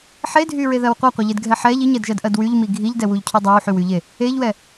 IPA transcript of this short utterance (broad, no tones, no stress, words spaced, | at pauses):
ħedʱyɹeðɜw qʷɜqʷɜʎedɡʱɛ ħɛʎ iɲɛdʒɜdʔɜd wyʎmi ɡʱiʎdɛwuʎcʰu dˤɜwħywyʎe | eʎwɛ